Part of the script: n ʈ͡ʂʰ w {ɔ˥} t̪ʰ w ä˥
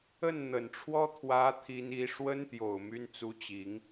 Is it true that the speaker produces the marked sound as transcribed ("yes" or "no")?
yes